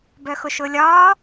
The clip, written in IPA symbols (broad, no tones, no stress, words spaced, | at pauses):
bœxʊʃʊːlʲɒː